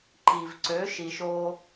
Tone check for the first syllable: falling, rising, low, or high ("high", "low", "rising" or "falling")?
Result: low